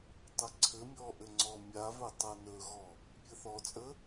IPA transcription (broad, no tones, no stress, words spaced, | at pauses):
tˤəǀʰɘmʲɔ ʔɘŋ͡ǀɔmʲavɵ tˤɤnɵɣɔ | pʲɘθɔt͡sʼə